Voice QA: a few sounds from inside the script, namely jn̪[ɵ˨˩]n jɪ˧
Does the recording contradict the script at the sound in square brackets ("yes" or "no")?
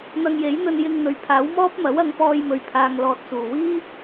yes